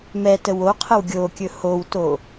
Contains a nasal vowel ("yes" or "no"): no